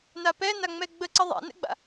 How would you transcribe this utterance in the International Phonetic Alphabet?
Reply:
napɛ naŋ͡mɛɡ͡bə ǀəðˤa̰nɛ̰ɡ͡ba̰

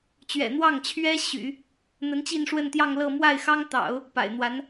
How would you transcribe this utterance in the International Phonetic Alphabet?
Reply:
t͡ɕɥɛ̰˨˩n̪wɑ˥˩ŋt͡ɕʰɥɛ˥ ɕy̰˨˩˦ | n̪ə˧˥nt͡ɕi˥˧nʂwə˥˧nt̪jɑ˥˧ŋ lɤ˥˧ mwa˥˩ɪ̯xɑ˥ŋt̪ɑ̰˨˩˦ʊ̯ | pa̰˨˩ɪ̯n̪wa˧˥n

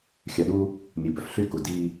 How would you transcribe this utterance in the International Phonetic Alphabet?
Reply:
xʲœ˨ɗu˦ | mʲʉ˨bœ˨f ɬy˦˨ku˨ di˦

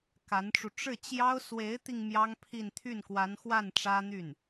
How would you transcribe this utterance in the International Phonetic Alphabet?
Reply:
ka˧˥nʈ͡ʂu˧ ʈ͡ʂɻ̩˥˩t͡ɕjɑ˥ʊ̯ swe˧˥ɪ̯t̪i˧ŋ mjɑ˥ŋpʰi˥˧n t̪ʰy˥˩nkwa˧˥nxwa˥˩n ʈ͡ʂä˥n̪y˥˩n

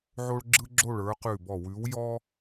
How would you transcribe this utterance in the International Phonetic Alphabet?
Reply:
ʕo˥ɭɡ͡ǁɯ˥ɡ͡ǁo˥˨ɭə˞˨˥ qʉ˧˩bɔ˧˩wʉ˨˥wjɔ˥

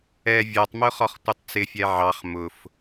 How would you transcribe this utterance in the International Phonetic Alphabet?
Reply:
ɛ vʲɒtˤmʊ χɒχtʷʌtˤt͡sɪfʲɛ ʕɑχ mʊf

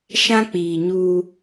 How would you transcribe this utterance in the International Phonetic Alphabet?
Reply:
ʃã˦k͡piː˨ɲuː˦

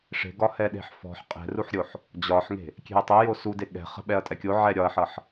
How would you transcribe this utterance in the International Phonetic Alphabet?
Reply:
ʂe̤ɡɒ hɛɗe̤ħfɔ̤ħ qʼɛ̤ruħɾʲoħ | d͡ʑɒħŋe̤ | kʲe̤ɐ̯tˤʌjo sude ɠɛ̤ χə̤ ɓɛɐ̯tʼɛkʲo ʕɛɾʲɒɐ̯ħʌħ

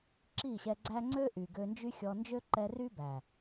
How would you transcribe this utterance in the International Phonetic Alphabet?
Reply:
ǁi˦˨ɕɛ˧ɡ͡ǀæ˦ ŋ͡ǀø˦ ʔy˨ɡø˧nd͡ʒy˦xʲɔ˧ nd͡ʒø˦ǃɛ˧ ry˦ bæ˨

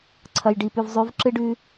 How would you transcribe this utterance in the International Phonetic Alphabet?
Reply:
ǀʰɐ˨jɖi˨pʉ˨vzˤʉ˨˦v ǁɨ˦ɖʉ˦

